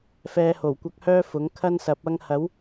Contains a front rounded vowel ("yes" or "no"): yes